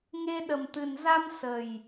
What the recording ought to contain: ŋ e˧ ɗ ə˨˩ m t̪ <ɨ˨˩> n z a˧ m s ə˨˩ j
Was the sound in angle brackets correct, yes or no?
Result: yes